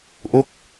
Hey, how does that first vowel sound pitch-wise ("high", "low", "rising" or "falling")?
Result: falling